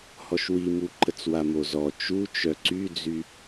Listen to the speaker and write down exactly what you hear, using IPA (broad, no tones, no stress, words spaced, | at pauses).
hɔʃwimuǃət͡s wamozɔ t͡ʃu t͡ʃœǀyd͡zy